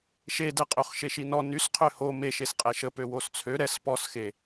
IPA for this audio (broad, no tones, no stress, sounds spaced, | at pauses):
ʃ e d ɛ qʼ ø χ ʃ e ʃ i n ɔ n y s qʰ ø h o m e ʃ e s qʼ ɛ ʃ ə p ø w o s t͡sʰ ø ɾ ɛ s p ɔ s x e